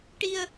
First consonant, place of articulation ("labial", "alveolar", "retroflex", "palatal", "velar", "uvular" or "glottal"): retroflex